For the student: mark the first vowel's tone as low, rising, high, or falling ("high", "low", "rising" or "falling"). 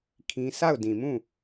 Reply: high